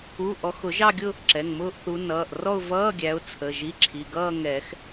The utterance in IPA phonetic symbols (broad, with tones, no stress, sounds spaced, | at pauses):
u˧˥˧ ʔ ɔ˨˦ x ʊ˨˩˦ ʒ ɑ˥˧ ɡʲ ʊ˥˧ | ǁ ɛ˩˧˩ ŋ m ʊː˥˧ ʔ θ u˨˦ n ʌː˩˧˩ ʔ r ɔ˥˧ ʊ̯ v ʌː˧˥˧ ɡʲ æ˨˦ ʊ̯ t͡sʰ ə˩˧˩ ʒ i˧˥˧ ǁʰ i˩˧˩ ɡ ʌː˥˧ ŋ ɛ˨˩˦ x